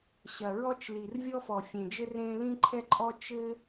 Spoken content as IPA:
ɕ ɐ˩ ɹ ɔ˥ t͡ʃ l i˩ r vʲ ɔ˥ f ɔ˩ fʲ ẽ˩ d͡ʒ ɘ˥ r ẽ˥ l ĩ˥ ǃʰ ɛ˥ ǃʼ ɔ˥ t͡ʃ ɘ˥

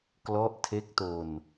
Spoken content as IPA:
k l ɔ˦˥ ʔ tʰ e˦˥ k̚ t o˧ n

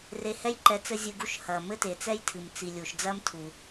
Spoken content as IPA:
r e˨ h ɛ˥ j ǃ ɛ˨ t͡s ɘ˦ zʲ ɨ˨ ɡ u˦ ʃ h ɐ˩ m ɘ˥ t e˩ t͡s ɛ˥ j tʰ ɨ˩ m t͡s i˨ lʲ u˩ ʃ d͡z ɐ˥ m tʰ u˩

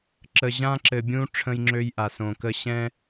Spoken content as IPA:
ǁ ə˨ ʑ ã˦ ǁ ɘ˨ bʲ ũ˦ ʈ͡ʂʰ ə̃˦ j ŋ͡ǁ ø˦ j ʔ a˨ s õ˨ k ə˦ ɕ ɛ̃˦

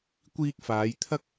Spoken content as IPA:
kʷ iː˧ k̚ f aː˨˧ j t̪ʰ ɐ˥ k̚

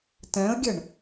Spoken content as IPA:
t ɛ̃ ə̯ ɡʲ ɯ ɳ

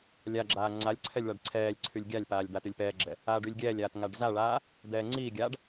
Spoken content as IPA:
lʲ a ɡ͡ǁ aː ŋ͡ǀ a lʲ ǀʰ ɛ lʲ ɭ a ɖ ǀʰ ɛː lʲ ǀʰ y lʲ ɡʲ a lʲ p aː lʲ d̪ a t y lʲ p ɛː ɡ͡ǁ ɛ | aː ɖ y lʲ ɡʲ ɛː lʲ aː t ŋ a ɖ z a ɭ aː | d̪ ɛː ŋ͡ǀ iː ɡʲ aː ɖ

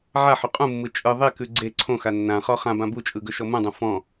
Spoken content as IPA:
ʕ a ħ ɵ qʼ ũ mː ɯ t͡ʃʼ ɯ ðˤ e k ʉ ɡ͡ǀ e ǀʰ õ x a nː ã χ ɔ χ ã b ã b u t͡ʃʼ ɯ ɡ ɵ ʃ ɔ m ũ dˤ ũ f ɔ̃

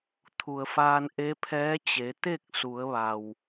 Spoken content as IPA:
t̪ʰ u˩ ə̯ f aː˧ n ʔ e˧˥ pʰ ɛː˧˥ t͡ɕ e˩˧ t̪ e˥˨ k̚ s u˩˧ ə̯ ʋ a˩ w

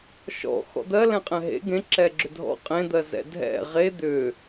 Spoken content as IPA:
ʃ ɔ̰ x ɔ̰ d̪ ɜ l ɛ̃ qʼ ɛ̃ ɦ ḛ ɡ ẽ ǁ ɛ ɡ͡ǁ ʏ dʱ ɔ̰ qʼ ẽ d̪ ɜ z ɛ̰ dʱ ɛ̰ ʁ e d̪ ʏ

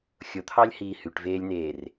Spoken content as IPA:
xʲ o t̪ʰ ɑ lʲ h iː h y ʈ v eː lʲ n eː r

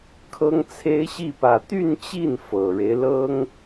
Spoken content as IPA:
kʰ ɤ˥ ŋ t͡sʰ e˥ ɪ̯ ɕ i˥˧ p ä˥˧ t̪ y˥˧ n t͡ɕ i˥˩ n f ɤ˨˩ ɻ e˦ ɪ̯ l ɤ˥ ŋ

